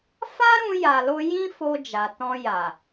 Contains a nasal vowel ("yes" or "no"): yes